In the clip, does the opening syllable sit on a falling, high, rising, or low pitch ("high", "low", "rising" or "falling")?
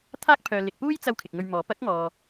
high